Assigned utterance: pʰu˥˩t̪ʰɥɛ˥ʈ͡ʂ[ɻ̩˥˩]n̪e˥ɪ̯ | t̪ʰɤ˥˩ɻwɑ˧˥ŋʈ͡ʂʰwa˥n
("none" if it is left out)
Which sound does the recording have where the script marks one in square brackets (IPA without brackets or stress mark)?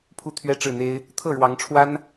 ɻ̩˥˩